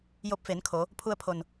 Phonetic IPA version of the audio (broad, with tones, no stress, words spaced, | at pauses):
jo˧p̚fe˩˧nkʰo˩˧ | pʰu˧ə̯pʰo˩n